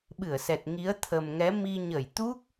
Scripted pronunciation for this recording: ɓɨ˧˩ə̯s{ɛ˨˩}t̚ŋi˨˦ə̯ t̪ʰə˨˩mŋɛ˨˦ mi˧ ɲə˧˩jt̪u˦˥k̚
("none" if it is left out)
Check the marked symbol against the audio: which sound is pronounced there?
ɛ˨˩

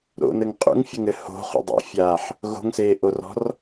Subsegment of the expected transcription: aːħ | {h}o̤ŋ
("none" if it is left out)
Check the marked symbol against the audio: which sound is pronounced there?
ɣ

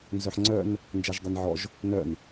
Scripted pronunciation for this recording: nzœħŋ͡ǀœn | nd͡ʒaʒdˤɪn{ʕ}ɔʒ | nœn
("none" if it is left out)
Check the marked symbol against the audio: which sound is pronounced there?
ʕ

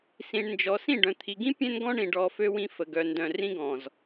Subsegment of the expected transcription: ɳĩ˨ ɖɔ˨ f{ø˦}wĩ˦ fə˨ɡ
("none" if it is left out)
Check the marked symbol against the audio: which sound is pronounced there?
ø˦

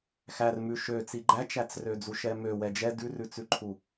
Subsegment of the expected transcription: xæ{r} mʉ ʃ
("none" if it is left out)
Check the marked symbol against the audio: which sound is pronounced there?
r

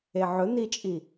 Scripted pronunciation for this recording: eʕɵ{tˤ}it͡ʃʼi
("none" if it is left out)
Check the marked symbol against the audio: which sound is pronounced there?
n̪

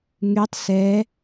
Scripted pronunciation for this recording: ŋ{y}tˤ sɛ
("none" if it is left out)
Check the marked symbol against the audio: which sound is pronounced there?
y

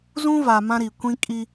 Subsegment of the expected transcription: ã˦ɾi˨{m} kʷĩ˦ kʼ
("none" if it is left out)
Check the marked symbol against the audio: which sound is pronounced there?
none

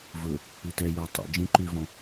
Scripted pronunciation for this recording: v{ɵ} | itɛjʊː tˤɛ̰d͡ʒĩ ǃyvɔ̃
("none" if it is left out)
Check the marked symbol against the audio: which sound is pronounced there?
ɵ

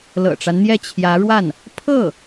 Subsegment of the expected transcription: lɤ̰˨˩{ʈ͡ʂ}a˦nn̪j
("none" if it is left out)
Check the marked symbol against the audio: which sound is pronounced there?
ʈ͡ʂ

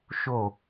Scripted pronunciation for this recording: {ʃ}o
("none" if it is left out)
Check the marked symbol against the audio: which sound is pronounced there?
ʃ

